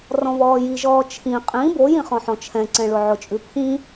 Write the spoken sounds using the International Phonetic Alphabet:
r ɔ̃ β ɔː j i ʒ ɔː t͡ʃʰ ĩ qʼ ĩ b o j ĩ χ ɔ̃ ħ ɔ̃ t͡ʃʰ ɛ̃ ǀ ɛ̃ ɭ ʊ ʕ ʊ t͡ʃʼ ʉ pʰ ĩ

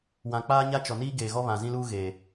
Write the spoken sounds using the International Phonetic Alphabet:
w ã˨ k͡p aː˦ ɲ a˦ t͡ʃ ɔ˨ n iː˦ ɡ eː˨ ɣ ɔ˦ β ã˨ z ĩ˦ l uː˦ ɣ eː˨

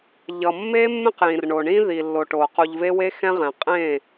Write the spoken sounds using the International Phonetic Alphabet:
ʎ ʌ˨ mː e˦ mː ẽ˦ q j ĩ˨ r ɳ o˨ ɳ ĩ˦ ð i˨ lː o˨ ʈ o˨ q u˨ ʎ v e˦ w e˦ x ɛ̃˦ ʁ ɛ̃˨ qʼ ẽ˦˨

